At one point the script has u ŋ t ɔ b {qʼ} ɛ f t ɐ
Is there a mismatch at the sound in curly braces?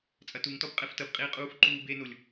no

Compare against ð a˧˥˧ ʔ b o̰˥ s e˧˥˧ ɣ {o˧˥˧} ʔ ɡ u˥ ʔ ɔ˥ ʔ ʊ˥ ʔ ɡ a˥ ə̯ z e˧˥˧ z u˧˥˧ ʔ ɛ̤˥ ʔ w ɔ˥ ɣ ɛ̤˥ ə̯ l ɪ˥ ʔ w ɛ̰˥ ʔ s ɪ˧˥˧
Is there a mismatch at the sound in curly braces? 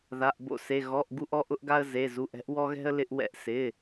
yes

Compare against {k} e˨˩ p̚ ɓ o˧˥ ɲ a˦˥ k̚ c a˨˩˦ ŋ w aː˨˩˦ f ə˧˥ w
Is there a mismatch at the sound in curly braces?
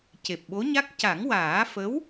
yes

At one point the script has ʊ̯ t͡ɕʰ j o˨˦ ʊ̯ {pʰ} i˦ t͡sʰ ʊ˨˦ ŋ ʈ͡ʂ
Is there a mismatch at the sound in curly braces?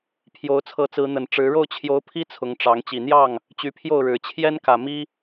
no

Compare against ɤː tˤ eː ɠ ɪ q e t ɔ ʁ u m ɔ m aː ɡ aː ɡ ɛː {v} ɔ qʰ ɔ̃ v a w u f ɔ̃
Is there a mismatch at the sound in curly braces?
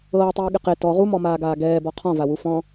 yes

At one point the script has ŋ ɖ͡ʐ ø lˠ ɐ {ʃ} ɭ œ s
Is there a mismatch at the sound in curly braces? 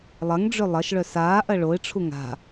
no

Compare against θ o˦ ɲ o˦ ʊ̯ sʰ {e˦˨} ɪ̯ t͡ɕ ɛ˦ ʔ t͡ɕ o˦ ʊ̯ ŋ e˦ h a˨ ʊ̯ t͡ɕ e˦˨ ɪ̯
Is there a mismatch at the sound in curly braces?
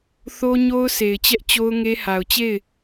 yes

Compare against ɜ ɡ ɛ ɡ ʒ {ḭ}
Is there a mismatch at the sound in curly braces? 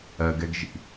no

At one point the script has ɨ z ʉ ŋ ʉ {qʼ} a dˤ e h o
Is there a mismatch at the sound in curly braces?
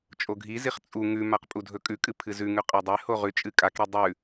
no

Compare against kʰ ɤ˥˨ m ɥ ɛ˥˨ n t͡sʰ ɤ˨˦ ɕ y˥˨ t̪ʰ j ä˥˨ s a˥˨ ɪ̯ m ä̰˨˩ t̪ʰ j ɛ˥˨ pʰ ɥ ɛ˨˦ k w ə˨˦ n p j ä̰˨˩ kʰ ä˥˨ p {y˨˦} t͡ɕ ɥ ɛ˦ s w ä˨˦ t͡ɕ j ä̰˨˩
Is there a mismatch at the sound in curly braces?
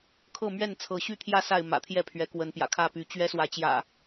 no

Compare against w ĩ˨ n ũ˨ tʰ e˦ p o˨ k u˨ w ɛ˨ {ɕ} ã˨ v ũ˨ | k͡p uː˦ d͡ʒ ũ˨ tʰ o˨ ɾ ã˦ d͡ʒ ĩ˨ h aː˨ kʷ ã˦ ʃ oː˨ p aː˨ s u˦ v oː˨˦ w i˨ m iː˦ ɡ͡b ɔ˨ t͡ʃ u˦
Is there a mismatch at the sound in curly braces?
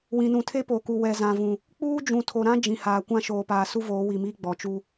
yes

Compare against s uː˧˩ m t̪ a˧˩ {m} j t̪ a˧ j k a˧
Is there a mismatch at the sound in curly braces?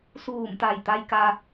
yes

